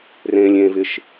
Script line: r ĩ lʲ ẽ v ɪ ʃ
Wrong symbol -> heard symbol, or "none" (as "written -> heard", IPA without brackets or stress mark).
ĩ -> ẽ